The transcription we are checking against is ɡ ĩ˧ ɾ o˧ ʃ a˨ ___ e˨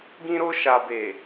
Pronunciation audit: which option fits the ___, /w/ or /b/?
b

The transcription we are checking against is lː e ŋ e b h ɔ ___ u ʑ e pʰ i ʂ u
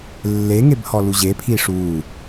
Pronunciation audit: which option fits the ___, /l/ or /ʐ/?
l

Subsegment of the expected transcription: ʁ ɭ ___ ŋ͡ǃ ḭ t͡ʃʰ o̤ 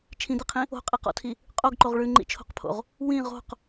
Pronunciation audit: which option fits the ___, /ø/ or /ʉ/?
ʉ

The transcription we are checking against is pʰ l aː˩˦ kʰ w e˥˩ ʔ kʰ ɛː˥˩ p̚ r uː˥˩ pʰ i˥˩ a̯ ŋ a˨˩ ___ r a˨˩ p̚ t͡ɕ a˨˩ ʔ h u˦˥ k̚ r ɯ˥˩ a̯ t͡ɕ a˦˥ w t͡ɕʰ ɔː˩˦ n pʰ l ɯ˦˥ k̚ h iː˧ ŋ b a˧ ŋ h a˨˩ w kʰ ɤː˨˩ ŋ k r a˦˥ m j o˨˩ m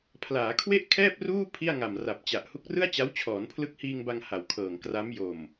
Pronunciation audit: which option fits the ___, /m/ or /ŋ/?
m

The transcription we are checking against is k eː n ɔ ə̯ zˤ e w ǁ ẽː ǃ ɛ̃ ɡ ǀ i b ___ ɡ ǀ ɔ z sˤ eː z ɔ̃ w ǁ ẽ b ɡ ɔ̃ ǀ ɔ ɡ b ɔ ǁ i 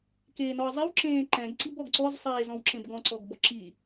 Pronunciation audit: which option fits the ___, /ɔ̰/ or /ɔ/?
ɔ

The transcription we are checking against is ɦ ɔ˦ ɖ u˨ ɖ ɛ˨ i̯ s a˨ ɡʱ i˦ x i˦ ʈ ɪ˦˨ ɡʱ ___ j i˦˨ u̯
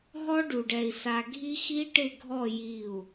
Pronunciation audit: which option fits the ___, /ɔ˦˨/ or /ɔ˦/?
ɔ˦˨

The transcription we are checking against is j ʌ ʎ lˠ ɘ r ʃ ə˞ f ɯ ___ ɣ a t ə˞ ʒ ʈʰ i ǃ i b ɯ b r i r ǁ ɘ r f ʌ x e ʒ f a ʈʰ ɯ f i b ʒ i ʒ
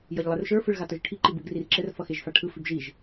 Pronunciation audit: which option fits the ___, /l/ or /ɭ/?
ɭ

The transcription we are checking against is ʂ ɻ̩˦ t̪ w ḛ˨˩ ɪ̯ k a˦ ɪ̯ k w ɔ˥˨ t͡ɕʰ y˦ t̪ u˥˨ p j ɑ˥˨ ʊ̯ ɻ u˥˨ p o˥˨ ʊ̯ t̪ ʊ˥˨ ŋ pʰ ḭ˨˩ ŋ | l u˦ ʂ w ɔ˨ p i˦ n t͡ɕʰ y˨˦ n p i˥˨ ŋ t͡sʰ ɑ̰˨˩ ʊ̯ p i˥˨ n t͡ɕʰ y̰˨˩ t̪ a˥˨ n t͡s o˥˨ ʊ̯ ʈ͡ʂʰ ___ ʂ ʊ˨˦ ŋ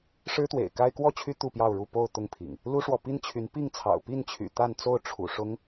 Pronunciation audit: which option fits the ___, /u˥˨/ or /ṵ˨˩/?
ṵ˨˩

